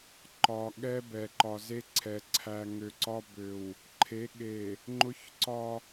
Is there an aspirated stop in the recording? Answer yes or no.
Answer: yes